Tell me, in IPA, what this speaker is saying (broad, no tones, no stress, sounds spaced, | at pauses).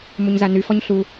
m u ɲ z a n y f ɔ ɲ ɬ u